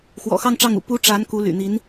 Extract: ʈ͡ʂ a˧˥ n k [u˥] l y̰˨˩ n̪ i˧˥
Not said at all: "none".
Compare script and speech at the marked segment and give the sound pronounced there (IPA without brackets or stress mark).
u˧˥